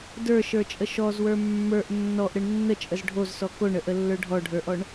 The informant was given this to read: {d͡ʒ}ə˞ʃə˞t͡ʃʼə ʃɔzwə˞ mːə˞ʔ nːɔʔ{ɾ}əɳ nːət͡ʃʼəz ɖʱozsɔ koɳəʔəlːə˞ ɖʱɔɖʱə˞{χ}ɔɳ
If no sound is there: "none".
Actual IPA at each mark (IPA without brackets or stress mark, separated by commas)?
d, ɾ, ʔ